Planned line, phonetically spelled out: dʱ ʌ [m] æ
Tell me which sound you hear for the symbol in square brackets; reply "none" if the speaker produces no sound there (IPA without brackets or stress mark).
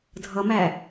m